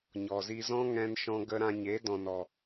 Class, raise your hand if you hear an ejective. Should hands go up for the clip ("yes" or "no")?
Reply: no